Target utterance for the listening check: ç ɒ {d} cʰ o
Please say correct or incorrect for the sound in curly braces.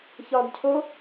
correct